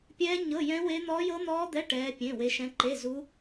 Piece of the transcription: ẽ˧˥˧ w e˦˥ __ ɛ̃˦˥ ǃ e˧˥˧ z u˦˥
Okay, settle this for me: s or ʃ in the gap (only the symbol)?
ʃ